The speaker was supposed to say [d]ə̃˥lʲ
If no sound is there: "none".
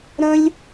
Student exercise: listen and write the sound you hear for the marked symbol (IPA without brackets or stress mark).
ɾ